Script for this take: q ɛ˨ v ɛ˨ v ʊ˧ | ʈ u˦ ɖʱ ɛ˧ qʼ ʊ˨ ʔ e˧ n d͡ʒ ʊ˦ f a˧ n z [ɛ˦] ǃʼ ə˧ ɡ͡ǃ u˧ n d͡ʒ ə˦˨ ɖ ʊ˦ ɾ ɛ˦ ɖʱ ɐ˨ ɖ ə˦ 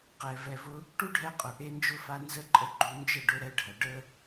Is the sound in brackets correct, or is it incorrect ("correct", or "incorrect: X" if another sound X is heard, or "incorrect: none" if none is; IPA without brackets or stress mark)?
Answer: incorrect: ə˦